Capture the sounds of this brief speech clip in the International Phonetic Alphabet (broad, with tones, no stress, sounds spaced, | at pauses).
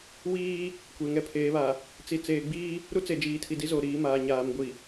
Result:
w iː˦ | kʷ e˨ ŋ ɛ˦ pʰ eː˨˦ β a˨ | t͡s i˨ t͡s eː˨ ɡ͡b iː˦ | ɾ u˦ t͡s e˨ d͡ʒ iː˨ tʰ i˨ d i˦ z o˨ ɾ iː˨˦ m aː˨ ɲ aː˨ m ɡʷ i˨